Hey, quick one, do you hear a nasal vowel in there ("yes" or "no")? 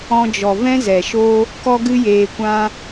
yes